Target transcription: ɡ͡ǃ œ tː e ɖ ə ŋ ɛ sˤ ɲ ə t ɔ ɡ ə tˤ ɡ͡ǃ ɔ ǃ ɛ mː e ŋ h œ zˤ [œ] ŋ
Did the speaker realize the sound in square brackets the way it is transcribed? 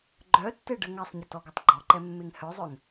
yes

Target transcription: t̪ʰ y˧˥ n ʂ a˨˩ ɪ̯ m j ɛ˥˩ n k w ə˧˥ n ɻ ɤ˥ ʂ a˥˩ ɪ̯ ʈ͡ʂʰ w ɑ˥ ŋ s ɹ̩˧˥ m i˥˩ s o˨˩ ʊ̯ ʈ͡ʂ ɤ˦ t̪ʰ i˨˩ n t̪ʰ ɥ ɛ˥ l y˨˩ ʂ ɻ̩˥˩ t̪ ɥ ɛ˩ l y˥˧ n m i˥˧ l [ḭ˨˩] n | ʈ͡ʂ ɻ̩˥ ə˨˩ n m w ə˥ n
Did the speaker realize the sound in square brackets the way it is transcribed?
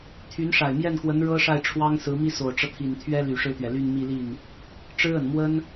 no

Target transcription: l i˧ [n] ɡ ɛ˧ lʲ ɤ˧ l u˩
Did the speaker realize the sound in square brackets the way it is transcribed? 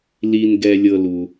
yes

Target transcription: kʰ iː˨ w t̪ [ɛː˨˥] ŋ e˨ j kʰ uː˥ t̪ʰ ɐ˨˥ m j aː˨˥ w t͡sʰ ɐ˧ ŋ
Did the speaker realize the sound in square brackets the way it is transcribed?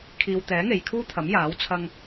yes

